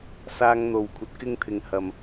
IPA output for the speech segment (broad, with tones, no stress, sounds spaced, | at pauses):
s aː˥ ŋ n̪ o˧ w kʷʰ ɐ˧ t̚ k ɪ˥ ŋ t̪ʰ ɪ˧ ŋ h ɐ˧ m